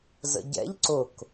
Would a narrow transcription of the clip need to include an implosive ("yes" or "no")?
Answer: no